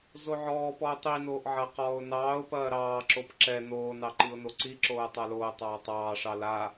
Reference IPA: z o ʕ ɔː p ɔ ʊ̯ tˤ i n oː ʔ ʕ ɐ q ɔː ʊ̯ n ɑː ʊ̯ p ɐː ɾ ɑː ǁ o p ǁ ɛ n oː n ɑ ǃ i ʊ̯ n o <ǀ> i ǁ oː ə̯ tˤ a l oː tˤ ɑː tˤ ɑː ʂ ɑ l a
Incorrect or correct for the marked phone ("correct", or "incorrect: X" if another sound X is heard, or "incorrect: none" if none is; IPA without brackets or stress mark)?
correct